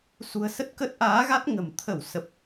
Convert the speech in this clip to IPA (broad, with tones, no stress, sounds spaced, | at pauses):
s ṳ˨˩ ə̯ s ə˦˥ t̚ k ə˦˥ t̚ ʔ aː˨˦ ɣ a˦˥ t̚ ŋ ə̤˨˩ m t̪ʰ ə˧˩ w s ə˨˩ p̚